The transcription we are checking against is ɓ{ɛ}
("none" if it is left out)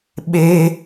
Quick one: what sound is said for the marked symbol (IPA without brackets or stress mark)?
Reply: e